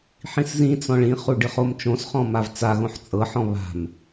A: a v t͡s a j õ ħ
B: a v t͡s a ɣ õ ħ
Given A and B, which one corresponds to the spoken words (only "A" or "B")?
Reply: B